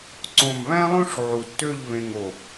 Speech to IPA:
ǀ õ˧˩ m β æ̃˥ lˠ õ˥ ʂ ʕ u˧˩ tː ø˥˧ ʎ β ẽ˧ ŋ o˧˩

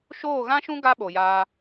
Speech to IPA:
ʃ oː˦˨ ɣ ã˦ ʃ ũ˦ ɡ a˦ ɓ o˨ j aː˧

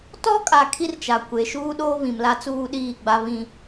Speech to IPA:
t ɔ˦ kʼ a˨ kʰ i˦ r t͡ʃ a˨ kʷ e˨ ʃ uː˦ ɗ oː˦ β ĩ˨ m l a˦ t͡s uː˦ ɗ iː˦˨ ɡ͡b a˦ β ĩ˦

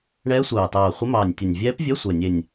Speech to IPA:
ɳ ɛː˧˥ sʷ ɑː˨˩ t ɑː˨˩ χʷ ə˧˥ m ɑː˨˩ nʲ tʲ ə˨˩ nʲ vʲ ɛː˧˥ p vʲ ɛ˧˥˧ sʷ ɛ˨˩ nʲ e˨˩ nʲ

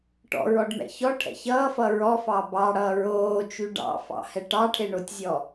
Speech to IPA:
ʈ ɔ̰ ɹ ɔ ɖ m ɛ̰ ç ɔ ʈʰ ɛ̰ ç ʌː f ʌ ɹ ɔ f ɑ b ɑ ɽ ʌː ɹ oː t͡ʃ y ɖ ɑ̰ f ɑ̰ h ɛ ʈ ɑ ʈʰ e ɳ o tʲ zʲ ɔ

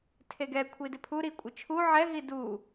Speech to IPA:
tʰ e ɡ ɛ kʷʰ i d ɪ pʰ u ɾ i kʷʼ ɪ t͡ʃʰ u ʕ ɛ ɦ i d u

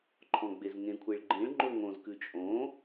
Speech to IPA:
ǃʰ ɔ̃ ɡ͡b e z ŋ ẽ kʷʰ e ɭ ɡ͡ǃ ĩ ɭ ŋ͡ǃ o ŋ õ z k ʉ t͡ʃʼ õ

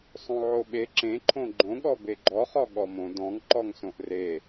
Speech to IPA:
sˤ õ ʕ o ɓ e ǁ ẽ ǃʰ õ ɡ͡ǃ õ ɠ ɔ b e ɡ͡ǃ ɔ χ ɔ ɠ ɔ m õ d ɔ̃ ŋ ǃ ɔ ŋ s õ ʔ r e

